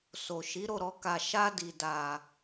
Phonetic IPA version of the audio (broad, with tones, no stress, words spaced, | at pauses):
so˨ʃi˨˦ ɾo˦˨ɾɔ˧ ka˨ ʃa˧di˨ da˨